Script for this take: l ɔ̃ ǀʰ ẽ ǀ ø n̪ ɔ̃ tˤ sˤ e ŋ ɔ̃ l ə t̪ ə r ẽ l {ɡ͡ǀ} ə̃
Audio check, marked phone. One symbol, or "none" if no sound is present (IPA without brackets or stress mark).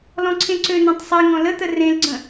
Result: ɡ͡ǀ